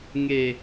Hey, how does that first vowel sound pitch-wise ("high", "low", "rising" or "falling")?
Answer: low